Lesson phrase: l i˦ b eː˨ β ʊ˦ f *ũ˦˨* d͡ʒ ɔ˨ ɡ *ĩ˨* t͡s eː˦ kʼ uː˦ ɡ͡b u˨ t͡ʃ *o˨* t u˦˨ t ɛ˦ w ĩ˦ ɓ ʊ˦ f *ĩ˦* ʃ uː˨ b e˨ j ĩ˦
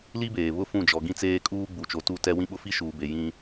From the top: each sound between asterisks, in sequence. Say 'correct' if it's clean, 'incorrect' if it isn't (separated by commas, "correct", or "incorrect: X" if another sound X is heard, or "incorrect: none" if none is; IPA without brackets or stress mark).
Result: correct, incorrect: ĩ˦, correct, incorrect: i˦